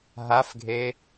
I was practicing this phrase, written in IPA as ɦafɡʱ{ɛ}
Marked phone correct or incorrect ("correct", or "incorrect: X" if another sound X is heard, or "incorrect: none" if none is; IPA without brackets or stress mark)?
incorrect: e